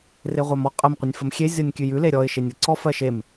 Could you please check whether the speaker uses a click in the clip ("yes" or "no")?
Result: yes